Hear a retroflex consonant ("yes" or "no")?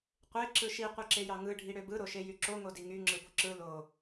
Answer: yes